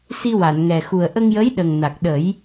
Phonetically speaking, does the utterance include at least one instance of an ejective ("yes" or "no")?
no